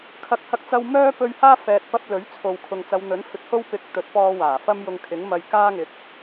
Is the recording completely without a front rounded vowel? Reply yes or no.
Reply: no